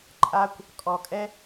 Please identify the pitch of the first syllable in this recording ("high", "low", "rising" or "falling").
high